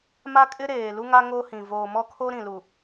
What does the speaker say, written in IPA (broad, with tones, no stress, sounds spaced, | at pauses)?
m a˦ kʼ ɪ˦ ɾ eː˨ l u˦ ŋ a˦ ŋ o˦ h ĩ˨ v oː˨ m ɔ˦ kʰ o˦ ɾ ĩ˨ l u˨